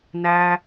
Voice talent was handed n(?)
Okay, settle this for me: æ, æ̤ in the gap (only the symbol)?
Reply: æ